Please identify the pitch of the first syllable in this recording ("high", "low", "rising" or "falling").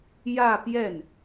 falling